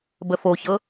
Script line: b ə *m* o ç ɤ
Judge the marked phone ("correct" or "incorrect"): incorrect